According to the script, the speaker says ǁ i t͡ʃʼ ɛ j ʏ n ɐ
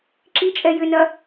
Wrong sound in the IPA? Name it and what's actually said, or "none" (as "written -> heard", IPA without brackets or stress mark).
none